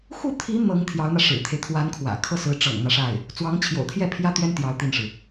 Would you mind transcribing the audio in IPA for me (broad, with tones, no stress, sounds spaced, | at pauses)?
x u˥˩ t̪ʰ i˧˥ n̪ ɤ˧˥ ŋ t̪ʰ j ɑ˧˥ ʊ̯ n̪ ä˧ ʂ ɻ̩˨˩ t̪ʰ e˦ ɪ̯ t̪ʰ w a˧˥ n kʰ w ä̰˨˩ kʰ ɤ˥˩ s ɹ̩˧˥ ʈ͡ʂ ɤ̰˨˩ ŋ n̪ ä˦ ʂ a˥˩ ɪ̯ | t͡s w ɑ˧˥ ŋ t͡ɕʰ j o̰˨˩ ʊ̯ t̪ʰ j ɛ˥˩ pʰ j ä˥ t̪ ɥ ɛ˥ n t̪ j ɑ˧˥ ʊ̯ t̪ i˥˩ n ʂ ɻ̩˩